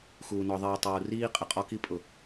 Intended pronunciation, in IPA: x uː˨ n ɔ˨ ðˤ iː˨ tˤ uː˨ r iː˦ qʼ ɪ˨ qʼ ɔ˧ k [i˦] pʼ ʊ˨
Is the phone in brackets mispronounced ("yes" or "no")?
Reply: no